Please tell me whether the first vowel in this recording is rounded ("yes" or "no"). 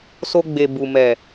yes